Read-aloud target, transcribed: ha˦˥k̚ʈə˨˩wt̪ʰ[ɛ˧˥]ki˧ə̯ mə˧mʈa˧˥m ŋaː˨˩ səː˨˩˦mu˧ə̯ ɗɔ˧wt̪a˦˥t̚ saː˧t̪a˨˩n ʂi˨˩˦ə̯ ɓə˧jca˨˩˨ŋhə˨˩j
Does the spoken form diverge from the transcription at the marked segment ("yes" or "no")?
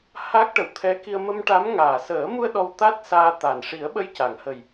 no